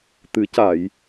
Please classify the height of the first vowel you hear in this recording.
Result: high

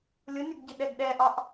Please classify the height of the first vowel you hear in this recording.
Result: high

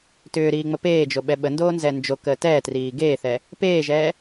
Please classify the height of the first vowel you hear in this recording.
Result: high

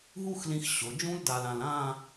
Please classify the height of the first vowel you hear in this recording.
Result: high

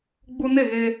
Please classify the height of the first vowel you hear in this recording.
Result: high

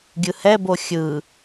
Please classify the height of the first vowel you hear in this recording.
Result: high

